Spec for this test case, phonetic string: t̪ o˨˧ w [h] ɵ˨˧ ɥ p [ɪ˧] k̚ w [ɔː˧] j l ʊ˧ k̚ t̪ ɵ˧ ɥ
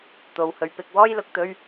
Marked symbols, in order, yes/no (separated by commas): yes, yes, no